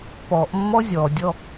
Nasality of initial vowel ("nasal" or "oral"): oral